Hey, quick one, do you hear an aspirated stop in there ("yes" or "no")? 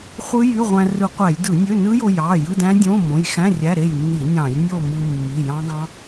no